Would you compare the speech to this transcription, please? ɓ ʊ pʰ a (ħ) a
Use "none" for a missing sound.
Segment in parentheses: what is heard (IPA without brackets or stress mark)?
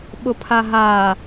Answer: ɦ